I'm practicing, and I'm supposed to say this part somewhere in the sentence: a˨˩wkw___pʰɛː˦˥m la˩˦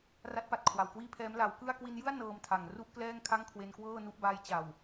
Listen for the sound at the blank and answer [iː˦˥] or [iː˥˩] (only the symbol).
iː˥˩